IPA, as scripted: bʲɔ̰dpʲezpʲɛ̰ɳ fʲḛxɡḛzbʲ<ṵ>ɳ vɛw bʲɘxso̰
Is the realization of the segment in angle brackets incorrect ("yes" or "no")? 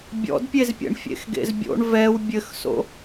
yes